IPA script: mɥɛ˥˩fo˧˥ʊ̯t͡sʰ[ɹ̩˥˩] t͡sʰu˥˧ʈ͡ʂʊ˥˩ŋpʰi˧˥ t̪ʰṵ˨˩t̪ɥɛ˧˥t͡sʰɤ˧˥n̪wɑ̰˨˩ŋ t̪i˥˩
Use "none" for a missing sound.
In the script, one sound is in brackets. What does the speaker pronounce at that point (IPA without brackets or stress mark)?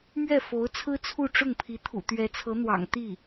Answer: ɹ̩˥